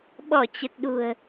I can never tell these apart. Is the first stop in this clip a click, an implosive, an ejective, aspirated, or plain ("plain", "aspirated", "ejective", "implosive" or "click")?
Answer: implosive